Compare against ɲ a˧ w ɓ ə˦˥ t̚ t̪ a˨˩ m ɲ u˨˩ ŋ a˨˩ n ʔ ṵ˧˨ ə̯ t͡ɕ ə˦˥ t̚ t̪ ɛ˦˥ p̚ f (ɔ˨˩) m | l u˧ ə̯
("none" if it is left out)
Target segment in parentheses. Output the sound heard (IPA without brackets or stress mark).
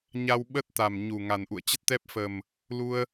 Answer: ə˨˩